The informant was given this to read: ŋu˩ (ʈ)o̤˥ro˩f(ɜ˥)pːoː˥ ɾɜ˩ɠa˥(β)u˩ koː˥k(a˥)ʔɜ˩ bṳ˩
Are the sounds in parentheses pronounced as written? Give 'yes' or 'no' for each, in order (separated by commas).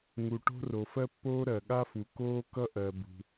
yes, yes, no, no